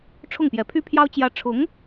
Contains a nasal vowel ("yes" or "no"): no